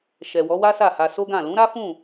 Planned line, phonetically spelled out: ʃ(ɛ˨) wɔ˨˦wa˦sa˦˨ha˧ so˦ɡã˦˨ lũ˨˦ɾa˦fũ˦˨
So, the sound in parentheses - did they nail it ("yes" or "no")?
yes